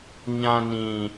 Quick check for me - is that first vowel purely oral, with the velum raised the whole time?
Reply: no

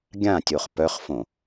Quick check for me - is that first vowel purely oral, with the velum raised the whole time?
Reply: no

